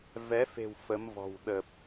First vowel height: mid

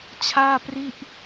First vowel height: low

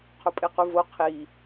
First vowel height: mid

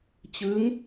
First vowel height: high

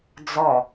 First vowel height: mid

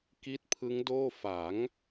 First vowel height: high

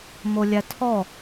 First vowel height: mid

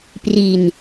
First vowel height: high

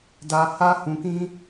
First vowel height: low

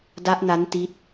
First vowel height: low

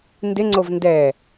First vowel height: high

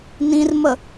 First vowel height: high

